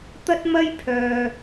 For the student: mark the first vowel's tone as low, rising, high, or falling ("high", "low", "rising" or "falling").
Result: high